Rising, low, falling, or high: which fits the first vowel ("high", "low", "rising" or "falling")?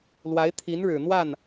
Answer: rising